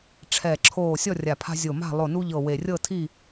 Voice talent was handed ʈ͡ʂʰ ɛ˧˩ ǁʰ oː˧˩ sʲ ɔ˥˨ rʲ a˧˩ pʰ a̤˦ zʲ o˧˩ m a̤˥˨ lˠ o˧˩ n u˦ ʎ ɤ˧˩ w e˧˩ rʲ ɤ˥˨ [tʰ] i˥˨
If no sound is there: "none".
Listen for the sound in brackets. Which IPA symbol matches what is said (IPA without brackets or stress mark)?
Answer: tʰ